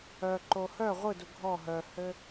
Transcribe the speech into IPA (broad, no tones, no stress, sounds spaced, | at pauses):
œ ǃ o h œ ʁʷ ɯ d u ɡʱ ɔ ɦ œ h ɘ